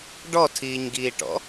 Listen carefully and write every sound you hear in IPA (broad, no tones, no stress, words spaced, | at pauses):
ɖɔtʰiːɲɡiːʈɔ̰